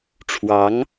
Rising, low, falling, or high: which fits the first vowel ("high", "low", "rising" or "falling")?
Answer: rising